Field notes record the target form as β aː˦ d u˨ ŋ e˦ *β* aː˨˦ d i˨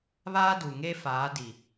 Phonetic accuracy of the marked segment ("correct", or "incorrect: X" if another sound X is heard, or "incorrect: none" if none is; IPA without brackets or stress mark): incorrect: f